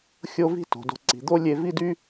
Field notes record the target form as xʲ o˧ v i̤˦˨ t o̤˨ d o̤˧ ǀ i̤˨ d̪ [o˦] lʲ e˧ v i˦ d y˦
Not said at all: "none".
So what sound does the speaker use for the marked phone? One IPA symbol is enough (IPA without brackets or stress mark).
o˦